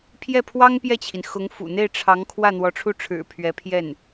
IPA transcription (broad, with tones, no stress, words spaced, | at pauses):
pʰjɛ˥˩pʰwɑ˥ŋpjɛ˥˩t͡ɕʰi˩n xʊ˧˥ŋfṵ˨˩ n̪e˥˩ɪ̯ʈ͡ʂʰɑ˧˥ŋ kʰwä˥˩n̪wɔ˧˥ʈ͡ʂʰu˥˩ʈ͡ʂʰɻ̩˨˩ pʰɥɛ˧˥pʰjɛ˥˩n